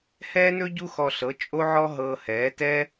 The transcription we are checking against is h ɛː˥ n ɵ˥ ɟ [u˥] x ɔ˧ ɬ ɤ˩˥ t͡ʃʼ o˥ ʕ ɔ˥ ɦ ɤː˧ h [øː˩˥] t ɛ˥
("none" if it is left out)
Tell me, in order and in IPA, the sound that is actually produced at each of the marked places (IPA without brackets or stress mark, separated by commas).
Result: u˥, ɛː˩˥